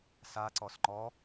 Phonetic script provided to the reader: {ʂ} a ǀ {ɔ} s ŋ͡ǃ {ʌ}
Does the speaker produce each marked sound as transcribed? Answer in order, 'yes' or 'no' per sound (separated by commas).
no, yes, no